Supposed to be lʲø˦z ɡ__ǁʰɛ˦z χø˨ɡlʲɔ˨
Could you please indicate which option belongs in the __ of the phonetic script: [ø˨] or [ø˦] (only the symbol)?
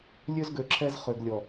ø˨